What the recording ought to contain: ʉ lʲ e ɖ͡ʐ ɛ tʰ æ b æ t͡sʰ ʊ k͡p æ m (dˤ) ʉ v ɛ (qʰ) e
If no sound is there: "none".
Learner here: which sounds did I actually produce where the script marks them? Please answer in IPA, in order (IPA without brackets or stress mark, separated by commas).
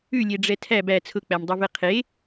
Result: dˤ, qʰ